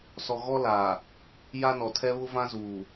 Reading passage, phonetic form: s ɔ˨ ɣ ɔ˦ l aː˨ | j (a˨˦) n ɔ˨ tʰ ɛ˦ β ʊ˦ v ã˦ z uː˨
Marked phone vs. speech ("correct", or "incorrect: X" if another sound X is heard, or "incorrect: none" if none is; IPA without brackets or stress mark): incorrect: a˦